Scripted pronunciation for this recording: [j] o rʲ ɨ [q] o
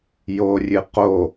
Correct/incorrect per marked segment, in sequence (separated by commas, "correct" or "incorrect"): correct, correct